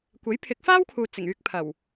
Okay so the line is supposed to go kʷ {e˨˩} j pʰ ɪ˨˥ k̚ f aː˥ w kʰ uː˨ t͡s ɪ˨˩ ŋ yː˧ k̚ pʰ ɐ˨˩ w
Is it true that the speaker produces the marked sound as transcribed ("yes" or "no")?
no